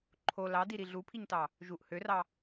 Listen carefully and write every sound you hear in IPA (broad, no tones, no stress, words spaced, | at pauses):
ǃʰo lɑdiɾi ɮupʰiɲtɑ | ʒuʔ hørɑ